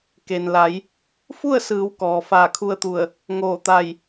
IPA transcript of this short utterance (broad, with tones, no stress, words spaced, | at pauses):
ke˩nla˩˧j | fu˥˨ə̯sɯː˩˧w kɔː˩faː˧˩kʰu˧ə̯t̪u˧˩ə̯ | ŋoː˧˩t̪a˧˩j